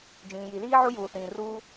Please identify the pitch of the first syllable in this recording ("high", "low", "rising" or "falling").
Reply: low